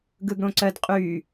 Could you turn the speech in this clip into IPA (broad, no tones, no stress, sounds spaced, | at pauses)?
ɡ ɯ ɡ ɽ õ ǀ ɜ d qʼ yː